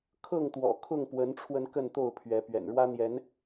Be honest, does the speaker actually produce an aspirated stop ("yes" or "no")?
yes